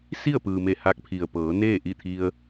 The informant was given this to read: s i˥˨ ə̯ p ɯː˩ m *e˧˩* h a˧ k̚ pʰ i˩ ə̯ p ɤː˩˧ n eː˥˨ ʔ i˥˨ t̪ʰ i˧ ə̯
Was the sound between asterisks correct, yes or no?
yes